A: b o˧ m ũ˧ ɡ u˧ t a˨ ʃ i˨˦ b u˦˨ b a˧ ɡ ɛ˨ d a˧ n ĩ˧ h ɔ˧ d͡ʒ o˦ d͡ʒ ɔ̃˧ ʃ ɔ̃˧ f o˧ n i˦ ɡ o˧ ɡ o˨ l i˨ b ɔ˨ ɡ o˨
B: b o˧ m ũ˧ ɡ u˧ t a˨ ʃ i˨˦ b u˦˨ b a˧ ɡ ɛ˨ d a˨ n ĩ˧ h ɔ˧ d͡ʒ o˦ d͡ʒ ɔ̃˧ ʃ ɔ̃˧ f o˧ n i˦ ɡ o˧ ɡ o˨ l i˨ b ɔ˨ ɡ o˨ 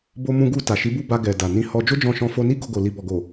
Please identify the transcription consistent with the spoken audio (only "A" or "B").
B